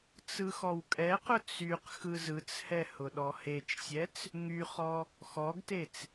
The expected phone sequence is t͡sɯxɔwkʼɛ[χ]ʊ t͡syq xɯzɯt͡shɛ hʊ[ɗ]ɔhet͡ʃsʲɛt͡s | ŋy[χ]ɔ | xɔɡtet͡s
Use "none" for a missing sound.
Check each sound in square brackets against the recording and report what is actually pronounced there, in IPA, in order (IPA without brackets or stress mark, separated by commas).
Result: q, ɗ, χ